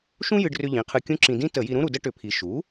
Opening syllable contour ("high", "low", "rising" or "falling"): high